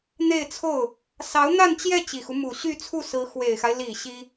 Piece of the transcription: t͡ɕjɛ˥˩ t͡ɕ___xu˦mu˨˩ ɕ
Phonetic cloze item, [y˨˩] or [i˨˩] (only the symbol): i˨˩